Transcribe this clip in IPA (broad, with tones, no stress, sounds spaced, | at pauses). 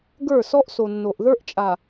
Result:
ɡ ə˞˦˨ s ɔ˦ ʔ s o˨ nː o˨ ʔ ð ə˞˦ ʔ t͡ʃʼ a˨